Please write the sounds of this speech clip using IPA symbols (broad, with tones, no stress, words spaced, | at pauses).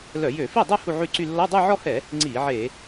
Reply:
lœ˧˩˧jø˧˩˧fi˥˩dˤø˥˧ hu˥˧ʕy˥˧ǀy˥˧ lːɔ˧˥˧dˤœ˥˧ʕɔ˥˧hɛ˧˩˧ | ŋ͡ǀi˧˩˧ ʕe˧˩˧